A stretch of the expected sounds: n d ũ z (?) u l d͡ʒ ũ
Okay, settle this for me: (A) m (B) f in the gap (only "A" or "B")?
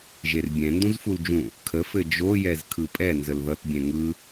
B